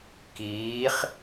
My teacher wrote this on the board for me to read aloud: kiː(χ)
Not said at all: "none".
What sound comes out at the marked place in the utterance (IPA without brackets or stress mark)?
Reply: χ